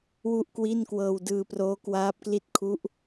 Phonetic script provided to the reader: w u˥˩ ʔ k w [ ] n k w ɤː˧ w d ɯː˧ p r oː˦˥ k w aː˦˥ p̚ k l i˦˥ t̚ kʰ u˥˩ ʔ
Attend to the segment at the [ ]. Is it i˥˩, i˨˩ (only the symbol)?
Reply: i˥˩